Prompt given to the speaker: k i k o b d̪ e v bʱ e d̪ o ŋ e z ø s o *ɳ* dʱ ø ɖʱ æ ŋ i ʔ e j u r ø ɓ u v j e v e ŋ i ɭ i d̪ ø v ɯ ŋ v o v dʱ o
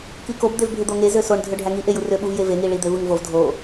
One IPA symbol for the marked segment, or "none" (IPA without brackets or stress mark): ɳ